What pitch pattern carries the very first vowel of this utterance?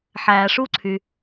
low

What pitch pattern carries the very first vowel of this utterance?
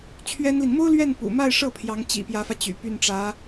high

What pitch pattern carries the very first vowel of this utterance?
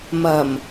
low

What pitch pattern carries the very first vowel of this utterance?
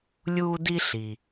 high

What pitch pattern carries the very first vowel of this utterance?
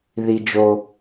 low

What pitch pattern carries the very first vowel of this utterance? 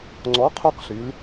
rising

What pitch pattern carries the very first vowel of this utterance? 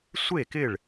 falling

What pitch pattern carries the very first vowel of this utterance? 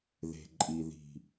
low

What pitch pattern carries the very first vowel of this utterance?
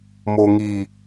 low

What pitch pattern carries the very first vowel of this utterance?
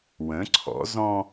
rising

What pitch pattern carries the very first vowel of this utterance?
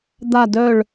falling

